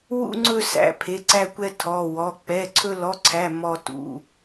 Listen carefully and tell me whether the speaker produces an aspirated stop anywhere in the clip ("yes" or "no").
yes